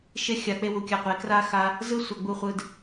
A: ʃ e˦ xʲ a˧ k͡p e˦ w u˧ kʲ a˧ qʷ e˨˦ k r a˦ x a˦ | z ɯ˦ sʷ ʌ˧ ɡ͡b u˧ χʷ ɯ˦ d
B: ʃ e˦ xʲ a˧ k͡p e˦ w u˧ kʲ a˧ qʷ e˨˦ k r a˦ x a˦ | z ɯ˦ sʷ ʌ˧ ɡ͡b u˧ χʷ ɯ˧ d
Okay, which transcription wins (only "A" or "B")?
B